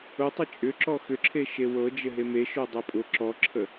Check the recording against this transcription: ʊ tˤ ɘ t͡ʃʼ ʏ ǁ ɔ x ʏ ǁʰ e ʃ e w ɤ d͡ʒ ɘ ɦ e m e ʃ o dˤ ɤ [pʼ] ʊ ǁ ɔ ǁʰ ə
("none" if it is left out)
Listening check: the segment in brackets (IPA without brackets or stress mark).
pʼ